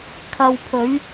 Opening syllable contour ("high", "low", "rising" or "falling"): low